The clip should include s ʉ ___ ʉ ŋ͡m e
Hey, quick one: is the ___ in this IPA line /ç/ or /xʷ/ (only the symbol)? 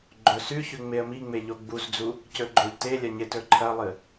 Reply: ç